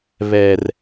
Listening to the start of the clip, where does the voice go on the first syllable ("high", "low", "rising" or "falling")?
low